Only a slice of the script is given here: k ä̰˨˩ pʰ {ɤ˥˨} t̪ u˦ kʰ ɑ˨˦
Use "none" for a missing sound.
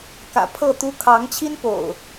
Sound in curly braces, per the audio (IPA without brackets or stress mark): ɤ˥˨